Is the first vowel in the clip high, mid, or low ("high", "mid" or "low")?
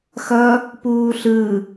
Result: mid